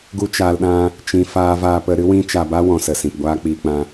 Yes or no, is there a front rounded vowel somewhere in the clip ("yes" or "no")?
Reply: no